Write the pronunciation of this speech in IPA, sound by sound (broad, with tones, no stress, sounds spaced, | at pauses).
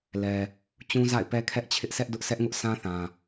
l ɛ˨ | t͡ɕ ũ˦ z a̰˦˨ ɪ̯ p ɛ˦ kʰ ɛ˦ ʔ t͡ɕʰ ɪ˦ ʔ sʰ ɛ˦ ʔ d ʊ˦ ʔ sʰ ɛ˦ ʔ ŋ ʊ˦ ʔ sʰ ã˦ θ ã˨